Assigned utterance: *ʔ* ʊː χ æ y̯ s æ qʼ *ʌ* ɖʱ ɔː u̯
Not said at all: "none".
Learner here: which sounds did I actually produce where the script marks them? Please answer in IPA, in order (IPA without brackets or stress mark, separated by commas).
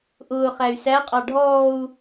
ʔ, ɑ